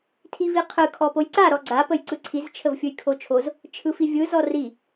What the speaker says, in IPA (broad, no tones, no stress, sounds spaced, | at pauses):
tʰ i v i qʰ ɯ kʰ ɔ p o j ǀ a ɾ ɔ ɡ͡ǀ a p ə j ǀ ɯ ǀʰ i z t͡ʃʰ ə v fʲ ɯ j kʰ o t͡ʃʰ o z | t͡ʃʰ ɯ f i vʲ ɯ z ɔ r i